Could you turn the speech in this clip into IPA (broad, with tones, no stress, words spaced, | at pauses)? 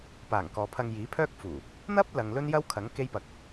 paː˨˩ŋkɔː˨ pʰɐ˧ŋjiː˨˥pʰœː˥k̚fuː˨˩ | n̪ɐ˥p̚lɐ˨ŋ lɵ˥njɐ˥wkʰɐ˨˥ŋ ke˥jpɐ˧k̚